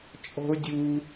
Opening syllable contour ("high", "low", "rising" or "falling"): high